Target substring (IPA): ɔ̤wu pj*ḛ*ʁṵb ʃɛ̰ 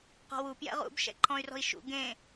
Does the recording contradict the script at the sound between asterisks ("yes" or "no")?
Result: yes